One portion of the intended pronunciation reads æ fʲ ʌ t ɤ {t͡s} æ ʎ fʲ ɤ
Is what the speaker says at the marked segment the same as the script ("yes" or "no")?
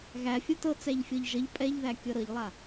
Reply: yes